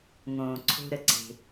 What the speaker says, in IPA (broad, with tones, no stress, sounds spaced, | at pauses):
ŋ õː˩ ǀʰ o̤˨ ɾ ə˩ ǀ e̤˩